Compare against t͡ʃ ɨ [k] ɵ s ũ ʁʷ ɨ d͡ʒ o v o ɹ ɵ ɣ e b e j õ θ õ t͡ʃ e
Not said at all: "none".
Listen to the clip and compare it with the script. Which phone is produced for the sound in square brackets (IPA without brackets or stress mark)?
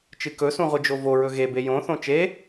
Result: k